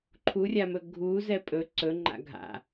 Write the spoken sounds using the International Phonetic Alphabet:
ǃʰurʲamɵ ɡʱu zɛpʼɵ ǀɵŋ͡ǃa̰ ɡʱa̰

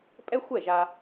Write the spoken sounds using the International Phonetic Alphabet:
pʼɛ˥xʷɛ˥˩ʒa˧

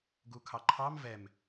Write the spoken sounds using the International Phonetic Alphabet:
ɡukʰɑǃʰɑm vɛm

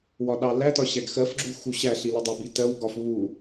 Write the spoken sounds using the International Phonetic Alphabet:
wɒɗɑlætɒ ɕæɡxɜfɡ͡ǁu xuɕæɬi lədˤəbi tɜwɡɒf βu

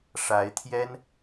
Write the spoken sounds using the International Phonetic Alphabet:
ʂa˧˥ɪ̯t̪ʰjɛ˥n

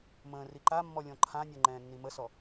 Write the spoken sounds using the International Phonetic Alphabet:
mə̃ː riǃamːɔ lʲɔ̃ǃʰãnʲɔ ŋ͡ǃɛ̃ːnːiməsɔ

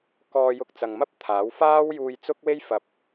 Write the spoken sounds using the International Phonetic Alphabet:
kɔː˧jʊ˧k̚ t͡sɐ˨ŋmɐ˥p̚ t̪ʰaː˨˥wfaː˥w juː˧jt͡sʊ˥k̚we˥jfɐ˨p̚

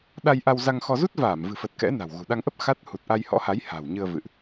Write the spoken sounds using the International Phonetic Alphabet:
ɗa˧j ʔa˧wza˧ŋxɔ˧ zu˦˥t̚vaː˧˩mvɨ̤˨˩fə˨˩t̚ kɛ̰˧˥na̤˨˩w ɣṳ˨˩ ɗa˧ŋʔə˦˥p̚ xa˦˥t̚ hu˨˩t̚ʔa˧j hɔ̰˧˥ha˨˦j ha̤˨˩wɲɨ˧ə̯ vɨ̰˧˨ʔ

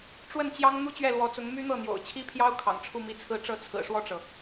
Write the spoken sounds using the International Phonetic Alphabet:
ʈ͡ʂwə˥˩nt͡ɕjɑ˥ŋ n̪u˥t͡ɕɥɛ˥˩lwɔ˧˥t͡sʊ˧˥ŋ my˥n̪ɤ˥˩ n̪jo̰˨˩ʊ̯t͡ɕʰi˥pʰjɑ˥ʊ̯ kʰɑ̰˨˩ŋʈ͡ʂʰu˥˧mi˥˧t͡sʰɹ̩˥˧ ʈ͡ʂɤ˥˩t͡sʰɹ̩˨˩ʂwɔ˥˩ʈ͡ʂɤ˩

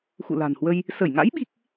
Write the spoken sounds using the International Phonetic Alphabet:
xṵ˧˨la̤˨˩nhwə˧j | sə˧˩j ŋa̰˧˥j ɓi˦˥k̚

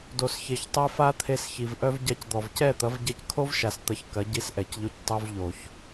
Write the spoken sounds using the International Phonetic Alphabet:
do˨sçe˨çtˤe˧ fa˦t̪ʰe˧sçi˨v ʔœ˧v ɟa˧cd̪ɔ˨v cɛ˦˨t̪ɐ˨˦vɟɛ˧ckʰo˦v ʃa˦st̪ɐ˦ç kɐ˨˦ɟi˧s ʔɛ˨cʎo˧c tˤu˧v ʎo˨ç

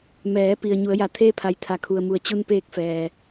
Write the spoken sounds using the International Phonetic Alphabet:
mɛː˩˧ pi˩ə̯ ɲu˩˧ə̯ja˩t̪ʰeː˥˨pʰa˩˧j t̪ʰa˩kʰu˩ə̯mu˩ə̯ t͡ɕu˧npeː˧k̚ fɛː˩

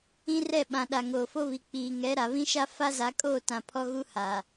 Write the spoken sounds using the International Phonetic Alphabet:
ĩ˦rɛ˦˨ ɓã˨ ɗa˨ŋoː˨fo˦βi˨ k͡piː˨ŋɛ˨˦ ɾa˨βĩ˦ʃa˦ fa˦za˨˦kʼoː˦˨tã˨ pʰɔ˦ɣu˦haː˨

